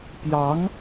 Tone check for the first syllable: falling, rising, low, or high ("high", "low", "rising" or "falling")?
rising